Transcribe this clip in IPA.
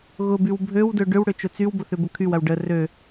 ɣ ʊ b y w bʱ ø w d ø ɖ ʏ w ɽ ø t͡ʃ ʊ t͡s y w b ʊ θ ʏ b ʊ kʰ y w ɐ w ɖ ə r ø

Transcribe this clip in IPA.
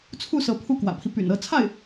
t͡sʰ u˥˩ s ɤ˧˥ pʰ u˥˩ k w ä̰˨˩ pʰ i˦ p y̰˨˩ n ɤ˥˧ t͡sʰ a˥˩ ɪ̯

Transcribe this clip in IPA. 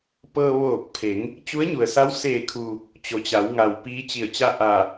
p ɤː˧ ʋ oː˧˩ k̚ pʰ e˩˧ ŋ | t͡ɕ u˧˥ ə̯ ɲ u˩ ə̯ s a˧˥ w s eː˧˩ kʰ uː˩ | t͡ɕ o˩ t͡ɕ a˩˧ w ŋ a˩ w p iː˧˥ t͡ɕ i˧˩ ə̯ t͡ɕ a˥˨ ʔ a˧˩

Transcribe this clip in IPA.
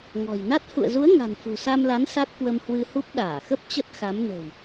ŋ ɔ̤˨˩ j n a˦˥ t̚ h ṵ˧˨ ə̯ z u˨˦ ə̯ ŋ a̤˨˩ n f ṳ˨˩ s a˧ m l a˨˦ n s a˦˥ t̚ k w ə˧ m h w ɨ˧ h u˦˥ p̚ ɗ aː˧˩ x ə˦˥ p̚ t͡ɕ ə˦˥ t̚ x a˨˦ m n ə̤˨˩ w

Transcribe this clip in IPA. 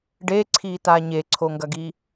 ɖ e ǀʰ i t a ɲ e ǀʰ o ŋ ɡ ɐ ɡ i

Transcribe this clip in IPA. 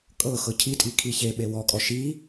kʼ ɤ x ɤ cʰ i tʼ i kʰ i ç e ɓ e w ɔ kʼ ɔ ʃ i

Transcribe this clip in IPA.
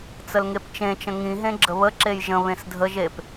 t͡s ə l ŋ e p t͡ʃ ẽ t͡ʃ ə̃ ŋ ĩ ɦ ẽ ɡ͡ǁ ə β ə ǁ e j ʒ ə̃ β ẽ s dʱ ə ʒ e p

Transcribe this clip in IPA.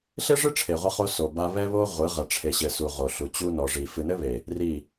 ɬ e˦ ʐ ɨ˦ ʈ͡ʂʰ e˨ ʁʷ ɐ˦ χ o˦ s o˨ b a˦ β ɛ˦ β o˦ ʁʷ ɨ˨˦ ʁ ɐ˨ ʈ͡ʂʰ e˨ ɕ ɘ˨ s u˨ ʁ o˨ ɬ u˨ t͡ɕ u˦ n ɔ˨ ʐ i˨ f ɨ˨ n ɘ˦ β e˨ | r i˦˨

